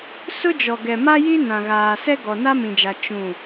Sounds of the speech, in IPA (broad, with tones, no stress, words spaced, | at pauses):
sʊ˦d͡ʒɔ˨ ɡɛ˨ma˦ji˦ nã˨ɣaː˨sɛ˦ ɡɔ˨na˦mĩ˨d͡ʒa˨ t͡ʃũ˦˨